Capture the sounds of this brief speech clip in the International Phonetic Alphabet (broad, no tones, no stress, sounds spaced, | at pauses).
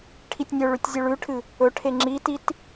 ʈʰ i tʲ nʲ ɵ ɭ ʉ tʲ zʲ ʉ ɭ ʉ ʈʰ ɨ | ɵ ʈʰ e ŋ͡ǁ i t i t